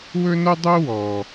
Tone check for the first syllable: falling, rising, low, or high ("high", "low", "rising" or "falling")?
high